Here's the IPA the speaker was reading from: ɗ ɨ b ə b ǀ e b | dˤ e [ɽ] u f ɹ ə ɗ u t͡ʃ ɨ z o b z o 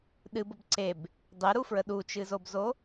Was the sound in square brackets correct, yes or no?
no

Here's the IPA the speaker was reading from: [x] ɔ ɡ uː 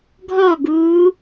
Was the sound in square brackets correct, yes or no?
no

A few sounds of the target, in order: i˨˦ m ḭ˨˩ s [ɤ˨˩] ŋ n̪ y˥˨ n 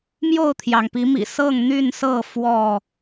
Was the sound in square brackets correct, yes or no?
no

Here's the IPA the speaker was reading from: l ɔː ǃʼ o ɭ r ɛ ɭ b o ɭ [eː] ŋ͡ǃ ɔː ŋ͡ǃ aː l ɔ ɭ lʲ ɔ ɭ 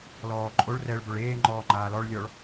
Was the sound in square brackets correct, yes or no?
yes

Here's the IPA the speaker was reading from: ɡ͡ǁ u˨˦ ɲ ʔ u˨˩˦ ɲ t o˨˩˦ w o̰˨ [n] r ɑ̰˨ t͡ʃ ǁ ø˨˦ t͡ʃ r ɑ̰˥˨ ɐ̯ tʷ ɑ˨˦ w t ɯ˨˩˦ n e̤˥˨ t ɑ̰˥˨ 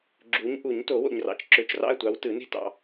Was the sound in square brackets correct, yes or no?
no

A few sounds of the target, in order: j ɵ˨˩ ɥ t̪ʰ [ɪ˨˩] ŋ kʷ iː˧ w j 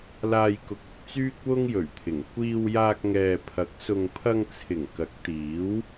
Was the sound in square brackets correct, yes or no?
yes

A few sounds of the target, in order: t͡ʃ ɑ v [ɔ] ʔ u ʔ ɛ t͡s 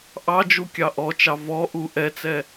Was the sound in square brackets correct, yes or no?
yes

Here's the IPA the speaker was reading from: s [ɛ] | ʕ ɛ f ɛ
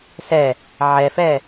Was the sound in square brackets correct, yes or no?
yes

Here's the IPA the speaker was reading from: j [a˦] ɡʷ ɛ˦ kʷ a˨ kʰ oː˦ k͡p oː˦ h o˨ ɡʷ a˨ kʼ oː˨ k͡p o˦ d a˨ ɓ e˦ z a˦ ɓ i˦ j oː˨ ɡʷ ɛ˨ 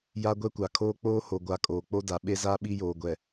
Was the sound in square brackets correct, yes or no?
yes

